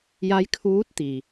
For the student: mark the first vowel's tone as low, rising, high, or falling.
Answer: rising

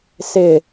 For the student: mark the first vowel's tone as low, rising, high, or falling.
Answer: low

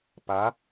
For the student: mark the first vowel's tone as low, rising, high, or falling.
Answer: rising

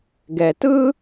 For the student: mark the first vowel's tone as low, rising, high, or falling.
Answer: low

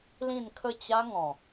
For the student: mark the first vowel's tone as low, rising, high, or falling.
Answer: falling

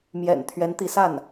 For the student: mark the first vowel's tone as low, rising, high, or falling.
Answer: low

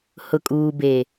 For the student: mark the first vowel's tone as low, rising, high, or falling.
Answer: low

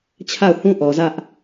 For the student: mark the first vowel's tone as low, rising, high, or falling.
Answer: falling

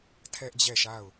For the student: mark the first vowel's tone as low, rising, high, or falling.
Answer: high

